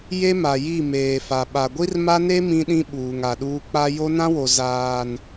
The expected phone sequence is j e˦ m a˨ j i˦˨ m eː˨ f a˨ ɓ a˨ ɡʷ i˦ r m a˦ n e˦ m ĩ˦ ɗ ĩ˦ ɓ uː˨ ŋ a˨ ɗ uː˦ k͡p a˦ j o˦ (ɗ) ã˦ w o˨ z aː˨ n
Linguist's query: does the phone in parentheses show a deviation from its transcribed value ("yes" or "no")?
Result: yes